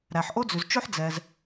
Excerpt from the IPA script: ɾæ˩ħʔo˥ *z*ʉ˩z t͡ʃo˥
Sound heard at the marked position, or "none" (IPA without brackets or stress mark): d͡z